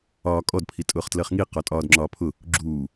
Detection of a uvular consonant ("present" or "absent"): present